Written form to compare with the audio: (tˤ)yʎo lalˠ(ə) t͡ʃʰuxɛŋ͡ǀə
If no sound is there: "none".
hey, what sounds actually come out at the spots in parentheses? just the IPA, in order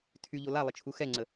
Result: tʰ, ə

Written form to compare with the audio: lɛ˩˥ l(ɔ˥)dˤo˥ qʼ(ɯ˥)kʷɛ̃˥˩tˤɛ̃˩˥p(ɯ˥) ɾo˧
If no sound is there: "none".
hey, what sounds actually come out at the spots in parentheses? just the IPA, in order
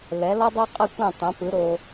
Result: ɔ˥, ɯ˥˩, ɯ˩˥

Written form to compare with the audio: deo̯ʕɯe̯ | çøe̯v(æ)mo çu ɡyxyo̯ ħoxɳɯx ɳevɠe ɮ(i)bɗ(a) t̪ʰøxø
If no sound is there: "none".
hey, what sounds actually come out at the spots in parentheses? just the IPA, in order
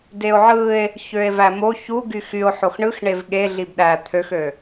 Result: æ, i, æ

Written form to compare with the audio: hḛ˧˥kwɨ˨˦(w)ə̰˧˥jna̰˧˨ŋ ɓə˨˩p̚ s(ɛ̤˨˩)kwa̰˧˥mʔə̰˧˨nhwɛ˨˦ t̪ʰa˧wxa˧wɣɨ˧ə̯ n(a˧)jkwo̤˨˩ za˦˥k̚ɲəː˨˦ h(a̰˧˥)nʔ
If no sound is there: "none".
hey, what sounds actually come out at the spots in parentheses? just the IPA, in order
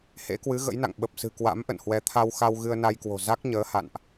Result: ɣ, ɨ̤˨˩, a˧, a̰˧˨

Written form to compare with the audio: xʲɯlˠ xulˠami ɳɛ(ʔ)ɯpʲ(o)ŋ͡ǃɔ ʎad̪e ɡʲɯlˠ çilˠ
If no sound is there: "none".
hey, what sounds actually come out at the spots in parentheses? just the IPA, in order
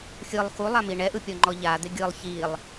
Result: ʔ, ɔ

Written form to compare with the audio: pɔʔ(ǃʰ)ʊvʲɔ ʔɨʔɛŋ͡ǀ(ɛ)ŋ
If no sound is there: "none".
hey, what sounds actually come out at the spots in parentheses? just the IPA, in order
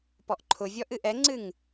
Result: ǃʰ, ɨ

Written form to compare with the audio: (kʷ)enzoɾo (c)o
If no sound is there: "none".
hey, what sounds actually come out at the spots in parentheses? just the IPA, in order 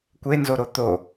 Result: kʷ, t̪

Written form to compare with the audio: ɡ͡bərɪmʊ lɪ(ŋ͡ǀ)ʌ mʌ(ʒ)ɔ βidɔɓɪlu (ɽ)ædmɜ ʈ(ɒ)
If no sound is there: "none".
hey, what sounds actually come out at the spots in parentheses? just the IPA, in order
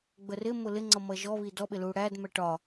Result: ŋ͡ǀ, ʒ, ɽ, ɒ

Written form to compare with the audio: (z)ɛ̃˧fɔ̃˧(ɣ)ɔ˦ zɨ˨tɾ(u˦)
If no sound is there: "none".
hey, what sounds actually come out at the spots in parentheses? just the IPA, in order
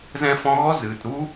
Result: z, ɣ, u˦

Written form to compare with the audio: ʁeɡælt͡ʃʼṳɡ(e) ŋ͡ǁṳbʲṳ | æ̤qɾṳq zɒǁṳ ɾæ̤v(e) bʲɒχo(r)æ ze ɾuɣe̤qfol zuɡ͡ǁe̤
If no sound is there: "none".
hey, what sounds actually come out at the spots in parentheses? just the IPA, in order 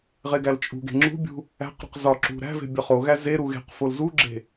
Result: e̤, e̤, ɣ

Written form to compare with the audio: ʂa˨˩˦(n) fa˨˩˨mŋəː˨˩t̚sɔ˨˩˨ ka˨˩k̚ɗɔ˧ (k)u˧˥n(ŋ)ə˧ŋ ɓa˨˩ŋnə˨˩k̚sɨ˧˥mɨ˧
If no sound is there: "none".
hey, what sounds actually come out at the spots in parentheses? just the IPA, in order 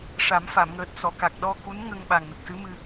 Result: m, k, ŋ

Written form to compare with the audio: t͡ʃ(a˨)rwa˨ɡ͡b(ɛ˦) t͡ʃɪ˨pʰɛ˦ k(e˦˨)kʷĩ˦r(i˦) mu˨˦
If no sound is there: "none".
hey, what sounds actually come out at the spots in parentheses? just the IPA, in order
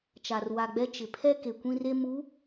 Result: a˨, ɛ˦, e˨, e˦

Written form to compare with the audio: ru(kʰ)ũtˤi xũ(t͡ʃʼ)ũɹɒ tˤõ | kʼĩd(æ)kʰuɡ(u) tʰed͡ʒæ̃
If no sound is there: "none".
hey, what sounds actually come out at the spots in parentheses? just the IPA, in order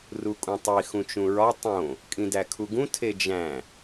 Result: kʼ, t͡ʃ, æ, ũ

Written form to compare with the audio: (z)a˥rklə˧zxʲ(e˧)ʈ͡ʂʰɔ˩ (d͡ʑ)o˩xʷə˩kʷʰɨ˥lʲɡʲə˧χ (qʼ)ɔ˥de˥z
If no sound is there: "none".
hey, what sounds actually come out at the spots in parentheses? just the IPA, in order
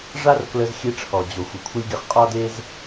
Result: ʐ, e˧, d͡ʑ, qʼ

